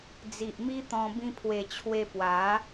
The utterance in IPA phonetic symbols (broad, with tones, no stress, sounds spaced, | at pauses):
d͡z i˨ ʔ m i˦ t̪ ɔ̃˧ b ĩ˧ pʰ w e˨˩ t͡ɕʰ w e˧ p w a˨˦